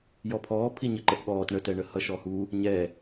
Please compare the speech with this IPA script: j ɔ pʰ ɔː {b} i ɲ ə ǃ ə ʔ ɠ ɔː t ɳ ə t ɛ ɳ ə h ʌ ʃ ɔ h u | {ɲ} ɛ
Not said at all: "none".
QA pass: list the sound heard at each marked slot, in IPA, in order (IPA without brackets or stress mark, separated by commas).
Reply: pʰ, ɲ